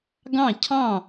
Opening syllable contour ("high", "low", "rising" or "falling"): falling